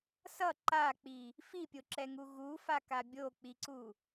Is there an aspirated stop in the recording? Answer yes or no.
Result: no